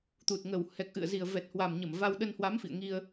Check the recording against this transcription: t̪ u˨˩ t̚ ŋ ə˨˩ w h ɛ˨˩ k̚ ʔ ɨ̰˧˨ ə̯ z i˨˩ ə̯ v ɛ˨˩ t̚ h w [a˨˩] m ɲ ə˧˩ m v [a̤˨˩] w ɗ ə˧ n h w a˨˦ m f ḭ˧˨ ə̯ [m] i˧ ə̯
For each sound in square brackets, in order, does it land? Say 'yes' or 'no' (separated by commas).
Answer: yes, no, no